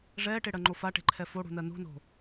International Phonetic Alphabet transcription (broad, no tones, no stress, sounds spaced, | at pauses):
ʐ ɛː ʈ e ɽ ɜ ŋ͡ǃ o f a ʈ e̤ ǃʰ ɛ f o ɽ ṳ n ɜ n ṳ n o̤